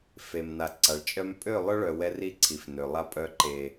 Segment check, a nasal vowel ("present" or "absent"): absent